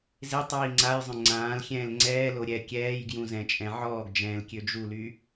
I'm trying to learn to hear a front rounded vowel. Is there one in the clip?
yes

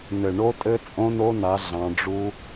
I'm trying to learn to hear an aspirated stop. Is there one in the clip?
no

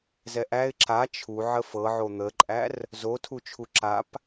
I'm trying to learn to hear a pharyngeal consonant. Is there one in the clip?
yes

